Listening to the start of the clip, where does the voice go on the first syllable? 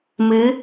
rising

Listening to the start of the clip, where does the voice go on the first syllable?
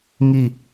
falling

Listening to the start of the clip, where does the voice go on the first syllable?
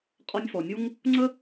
high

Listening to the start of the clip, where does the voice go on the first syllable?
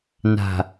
low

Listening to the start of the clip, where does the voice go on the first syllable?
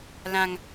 high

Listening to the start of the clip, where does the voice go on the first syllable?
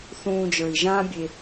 low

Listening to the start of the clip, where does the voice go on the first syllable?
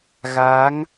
rising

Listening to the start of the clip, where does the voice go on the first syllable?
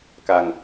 low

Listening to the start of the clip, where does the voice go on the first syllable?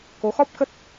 rising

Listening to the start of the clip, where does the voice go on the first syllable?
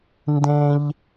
high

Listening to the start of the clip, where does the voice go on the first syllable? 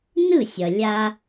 falling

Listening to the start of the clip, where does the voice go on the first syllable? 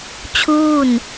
falling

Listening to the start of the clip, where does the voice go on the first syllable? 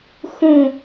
falling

